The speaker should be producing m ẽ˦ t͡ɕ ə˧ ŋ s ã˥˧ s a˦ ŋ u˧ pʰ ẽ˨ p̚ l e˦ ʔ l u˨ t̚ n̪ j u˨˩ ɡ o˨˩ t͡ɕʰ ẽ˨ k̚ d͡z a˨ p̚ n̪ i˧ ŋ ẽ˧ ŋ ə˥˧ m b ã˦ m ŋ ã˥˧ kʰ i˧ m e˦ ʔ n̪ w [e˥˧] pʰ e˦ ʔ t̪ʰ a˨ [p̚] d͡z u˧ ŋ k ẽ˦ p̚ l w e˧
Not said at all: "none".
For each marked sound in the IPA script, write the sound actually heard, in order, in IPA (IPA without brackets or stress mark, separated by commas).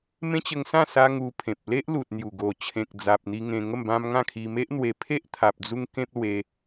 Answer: e˧, p̚